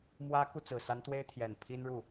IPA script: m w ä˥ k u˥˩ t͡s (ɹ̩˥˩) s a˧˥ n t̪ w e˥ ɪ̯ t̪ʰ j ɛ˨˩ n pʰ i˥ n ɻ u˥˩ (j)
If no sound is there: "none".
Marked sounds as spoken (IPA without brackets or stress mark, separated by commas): ɹ̩˨˩, none